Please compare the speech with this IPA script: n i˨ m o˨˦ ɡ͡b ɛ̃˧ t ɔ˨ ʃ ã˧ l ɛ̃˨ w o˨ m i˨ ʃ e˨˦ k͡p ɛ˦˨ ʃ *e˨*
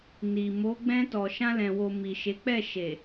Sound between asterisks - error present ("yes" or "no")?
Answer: no